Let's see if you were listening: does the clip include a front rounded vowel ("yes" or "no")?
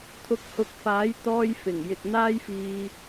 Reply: no